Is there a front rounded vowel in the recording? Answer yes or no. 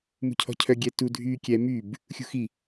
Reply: yes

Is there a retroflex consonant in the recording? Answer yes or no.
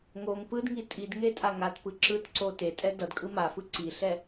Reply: no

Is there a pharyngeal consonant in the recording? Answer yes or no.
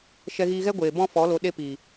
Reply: no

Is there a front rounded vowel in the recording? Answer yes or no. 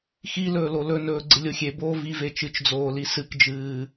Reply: no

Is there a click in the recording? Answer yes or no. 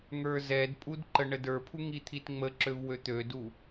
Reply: yes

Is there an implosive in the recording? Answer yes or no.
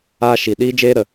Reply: yes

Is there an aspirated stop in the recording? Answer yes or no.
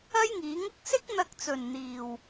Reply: no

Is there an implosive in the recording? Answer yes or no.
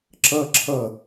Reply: no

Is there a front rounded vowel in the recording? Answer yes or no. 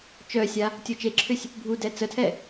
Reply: yes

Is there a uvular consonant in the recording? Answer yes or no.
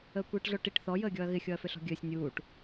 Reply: no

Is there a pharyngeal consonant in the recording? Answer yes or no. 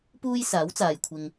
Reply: no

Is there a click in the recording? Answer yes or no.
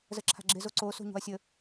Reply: yes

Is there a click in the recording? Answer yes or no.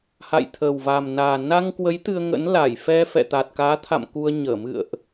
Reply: no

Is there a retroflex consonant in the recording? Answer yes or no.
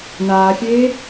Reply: no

